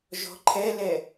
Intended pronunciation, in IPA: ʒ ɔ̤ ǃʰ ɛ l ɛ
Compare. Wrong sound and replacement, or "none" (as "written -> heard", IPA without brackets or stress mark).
none